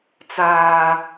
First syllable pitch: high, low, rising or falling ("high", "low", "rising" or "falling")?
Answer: low